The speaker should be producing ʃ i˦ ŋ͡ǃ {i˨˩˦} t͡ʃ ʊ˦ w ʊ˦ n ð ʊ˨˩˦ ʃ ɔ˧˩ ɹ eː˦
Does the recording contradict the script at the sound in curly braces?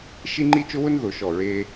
yes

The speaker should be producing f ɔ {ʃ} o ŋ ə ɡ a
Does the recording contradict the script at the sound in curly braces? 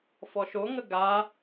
no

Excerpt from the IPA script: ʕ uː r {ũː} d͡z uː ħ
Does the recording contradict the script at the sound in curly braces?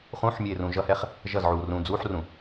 no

